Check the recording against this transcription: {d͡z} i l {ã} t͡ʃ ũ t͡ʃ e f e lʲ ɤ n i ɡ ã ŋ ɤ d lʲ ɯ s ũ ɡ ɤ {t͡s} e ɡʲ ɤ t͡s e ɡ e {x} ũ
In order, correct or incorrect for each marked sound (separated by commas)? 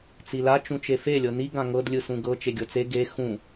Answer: incorrect, incorrect, incorrect, correct